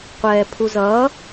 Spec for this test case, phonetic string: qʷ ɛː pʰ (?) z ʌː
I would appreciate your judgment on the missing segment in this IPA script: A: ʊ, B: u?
B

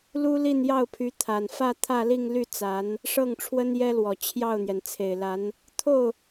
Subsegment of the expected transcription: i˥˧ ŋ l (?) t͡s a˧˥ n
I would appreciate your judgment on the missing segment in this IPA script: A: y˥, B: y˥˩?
B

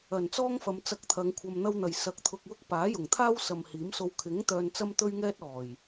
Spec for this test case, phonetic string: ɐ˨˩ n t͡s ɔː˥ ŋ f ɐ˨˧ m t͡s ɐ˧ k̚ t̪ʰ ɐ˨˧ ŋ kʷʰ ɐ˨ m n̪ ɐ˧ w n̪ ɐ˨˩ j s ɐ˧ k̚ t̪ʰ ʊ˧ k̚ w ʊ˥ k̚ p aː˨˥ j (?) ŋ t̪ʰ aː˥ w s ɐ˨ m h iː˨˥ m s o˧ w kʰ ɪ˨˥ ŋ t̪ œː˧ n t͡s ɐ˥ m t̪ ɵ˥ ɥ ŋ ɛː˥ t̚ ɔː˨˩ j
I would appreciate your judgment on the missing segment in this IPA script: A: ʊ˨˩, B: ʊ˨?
A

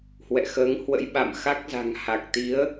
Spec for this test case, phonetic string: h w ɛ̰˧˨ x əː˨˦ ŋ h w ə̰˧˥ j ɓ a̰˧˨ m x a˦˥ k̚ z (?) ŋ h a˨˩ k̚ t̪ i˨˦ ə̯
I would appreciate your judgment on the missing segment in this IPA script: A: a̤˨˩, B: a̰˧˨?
A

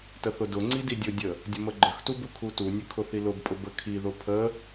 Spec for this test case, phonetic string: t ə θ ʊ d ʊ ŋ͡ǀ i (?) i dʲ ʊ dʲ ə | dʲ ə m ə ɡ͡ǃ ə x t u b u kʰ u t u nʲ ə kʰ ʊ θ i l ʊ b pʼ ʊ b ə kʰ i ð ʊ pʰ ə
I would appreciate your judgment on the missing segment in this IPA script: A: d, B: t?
A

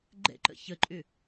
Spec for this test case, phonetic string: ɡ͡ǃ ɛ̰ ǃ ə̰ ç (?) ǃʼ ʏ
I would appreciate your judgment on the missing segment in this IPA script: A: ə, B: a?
A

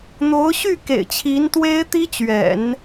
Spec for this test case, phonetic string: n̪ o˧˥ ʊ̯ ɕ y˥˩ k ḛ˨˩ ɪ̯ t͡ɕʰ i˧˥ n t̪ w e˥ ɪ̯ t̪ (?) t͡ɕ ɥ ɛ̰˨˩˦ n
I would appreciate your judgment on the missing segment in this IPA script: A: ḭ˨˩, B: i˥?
B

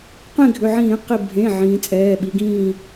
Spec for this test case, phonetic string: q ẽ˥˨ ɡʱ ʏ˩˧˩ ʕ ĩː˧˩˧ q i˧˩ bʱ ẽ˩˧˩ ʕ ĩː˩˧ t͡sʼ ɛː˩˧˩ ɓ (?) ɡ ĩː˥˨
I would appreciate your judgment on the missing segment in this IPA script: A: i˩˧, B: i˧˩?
A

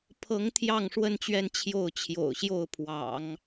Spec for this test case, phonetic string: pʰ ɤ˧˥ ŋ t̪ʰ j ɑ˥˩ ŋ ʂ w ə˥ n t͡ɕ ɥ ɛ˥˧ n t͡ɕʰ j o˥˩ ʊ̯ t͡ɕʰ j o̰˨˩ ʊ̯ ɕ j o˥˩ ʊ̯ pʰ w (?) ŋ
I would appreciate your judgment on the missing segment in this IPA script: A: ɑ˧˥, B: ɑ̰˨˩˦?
B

